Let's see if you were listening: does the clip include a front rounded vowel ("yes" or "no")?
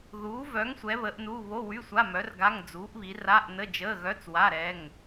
yes